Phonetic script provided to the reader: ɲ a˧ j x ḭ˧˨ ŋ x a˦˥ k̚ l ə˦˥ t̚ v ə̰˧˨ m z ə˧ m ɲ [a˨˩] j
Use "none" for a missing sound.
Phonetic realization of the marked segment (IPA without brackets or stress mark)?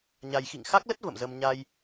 a˧